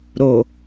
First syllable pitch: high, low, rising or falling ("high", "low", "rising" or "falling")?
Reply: low